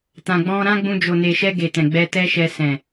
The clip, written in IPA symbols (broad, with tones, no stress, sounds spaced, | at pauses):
t ã˨ ɡ͡b ɔ̃˧ ɾ ã˦ ɡ͡b ũ˧ d͡ʒ o˨ n e˨ ʃ ɛ˧ ɡ e˨ t ɛ̃˨ ɡ͡b ɛ˧ t ɛ˦ ʃ ɛ˧ s ɛ̃˨